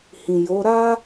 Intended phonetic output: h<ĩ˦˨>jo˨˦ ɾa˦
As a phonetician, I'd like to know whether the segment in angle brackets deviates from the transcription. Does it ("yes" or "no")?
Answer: yes